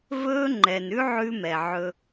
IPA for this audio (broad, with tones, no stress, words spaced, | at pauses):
vɵː˦ŋ͡ǃɛ˨n ʉ˦ʕʉ˧ mɛ˨ʕɵ˧